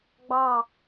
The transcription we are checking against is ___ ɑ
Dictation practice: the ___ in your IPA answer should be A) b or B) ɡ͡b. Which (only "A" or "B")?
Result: B